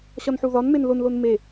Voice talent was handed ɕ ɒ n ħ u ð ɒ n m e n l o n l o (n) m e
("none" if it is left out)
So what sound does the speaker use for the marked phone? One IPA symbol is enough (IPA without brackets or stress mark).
n